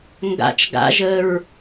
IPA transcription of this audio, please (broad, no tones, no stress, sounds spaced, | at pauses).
ŋ ɡ a̰ t͡ʃ ɡ a̰ ʒ ə ɹ